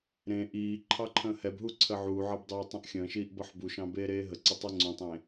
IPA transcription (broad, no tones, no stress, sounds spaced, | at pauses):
ɾ ẽ ʔ iː ǃʰ ɑ ǃʰ ə̃ː h ɛ b ɦ u ǀʰ ə ʕ u ʕ ʌ b dˤ iː tˤ ə̃ ʔ xʲ ə̃ː ʃ iː ʔ b ʌ ħ b u ʃ ɑ̃ b eː ɾ eː ɦ ə ǀ ə tˤ ɛ ŋ͡ǀ ũ tˤ ẽ